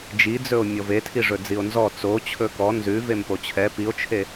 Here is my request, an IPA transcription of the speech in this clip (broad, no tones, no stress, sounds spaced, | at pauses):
d͡ʒ i d͡z ɵ o̯ mʲ ɔ v e tʰ i ʐ ɵ d͡z i o̯ n z ɔ t͡s o t͡ɕʰ ɵ k ɔ n z ʉ v e m p o t͡ɕʰ ɛ p i o̯ t͡ʃʰ e